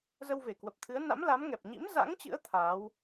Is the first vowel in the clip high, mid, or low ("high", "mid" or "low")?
mid